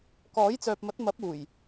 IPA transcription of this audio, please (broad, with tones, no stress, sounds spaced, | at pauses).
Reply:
k ɔː˨˥ j t͡s œː˨ p̚ m ɐ˨˥ t̚ m ɐ˨˥ p̚ uː˨˩ j